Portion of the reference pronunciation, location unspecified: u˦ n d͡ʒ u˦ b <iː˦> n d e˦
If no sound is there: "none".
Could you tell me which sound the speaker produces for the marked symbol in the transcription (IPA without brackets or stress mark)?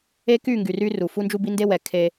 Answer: i˦